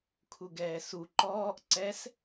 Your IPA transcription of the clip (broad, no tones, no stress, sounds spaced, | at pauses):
kʰ u ɡ ɛː s u ǃ ɔː ʔ ǀ ɛ s